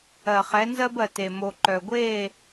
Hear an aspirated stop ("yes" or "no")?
no